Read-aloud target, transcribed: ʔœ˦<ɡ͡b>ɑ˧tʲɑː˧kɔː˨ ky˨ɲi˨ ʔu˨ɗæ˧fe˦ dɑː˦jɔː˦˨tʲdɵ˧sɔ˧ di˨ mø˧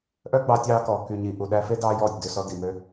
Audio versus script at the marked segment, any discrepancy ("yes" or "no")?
no